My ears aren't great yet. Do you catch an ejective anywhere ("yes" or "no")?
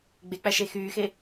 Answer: no